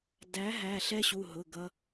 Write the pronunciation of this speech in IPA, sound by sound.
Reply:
d æ˨˦ ɦ æ˩˧˩ ɬ ɛ˦ ɕ u˩˧˩ ɦ ʊ˩˧˩ ɡ ʌ˦

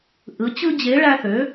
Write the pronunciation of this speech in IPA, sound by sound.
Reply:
ʔ ɯ˨˥ t͡ɕ ɯ˦ d͡ʑ e˨˥ ɭ æ˦ θ ø˨˥

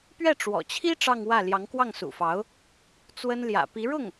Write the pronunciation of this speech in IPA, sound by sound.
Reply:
p ɥ ɛ˥˩ ʈ͡ʂ w ɔ̰˨˩ t͡ɕʰ i˥ ʈ͡ʂ ɑ˥˧ ŋ w ä˥˩ l j ɑ˧˥ ŋ k w ɑ˥˩ ŋ s ṵ˨˩ f ɑ˧˥ ʊ̯ | t͡s w ə˥ n l j ä̰˨˩ p i˧˥ ɻ ʊ˥˩ ŋ

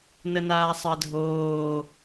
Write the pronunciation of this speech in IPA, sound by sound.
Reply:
n ə n aː sˤ ɜ dʱ oː

